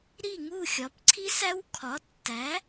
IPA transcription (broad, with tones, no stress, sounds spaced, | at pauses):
ɾ i˥˨ ŋ u˥˨ xʲ ɒ˩˥ p ǀʰ i˦˥ s æ˦˥ w kʰ ɒ˩˥ tː æ˩˥